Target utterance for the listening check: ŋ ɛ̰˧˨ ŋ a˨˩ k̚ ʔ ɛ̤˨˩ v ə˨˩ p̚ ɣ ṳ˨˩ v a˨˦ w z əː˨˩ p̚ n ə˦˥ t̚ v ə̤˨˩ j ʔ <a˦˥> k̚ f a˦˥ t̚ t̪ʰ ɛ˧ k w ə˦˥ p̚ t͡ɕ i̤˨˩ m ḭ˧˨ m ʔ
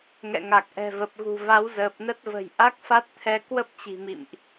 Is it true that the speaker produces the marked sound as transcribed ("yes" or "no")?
yes